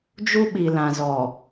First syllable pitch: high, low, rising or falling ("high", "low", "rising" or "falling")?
high